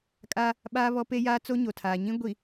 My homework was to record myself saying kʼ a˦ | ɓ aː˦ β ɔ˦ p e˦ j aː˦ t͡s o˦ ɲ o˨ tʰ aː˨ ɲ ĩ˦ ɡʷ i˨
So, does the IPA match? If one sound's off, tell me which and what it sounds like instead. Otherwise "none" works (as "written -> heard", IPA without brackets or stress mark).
none